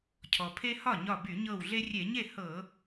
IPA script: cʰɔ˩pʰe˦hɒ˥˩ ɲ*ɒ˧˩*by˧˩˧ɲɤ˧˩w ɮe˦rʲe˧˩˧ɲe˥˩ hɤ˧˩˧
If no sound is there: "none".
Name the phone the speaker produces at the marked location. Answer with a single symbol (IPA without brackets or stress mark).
ɒ˧˩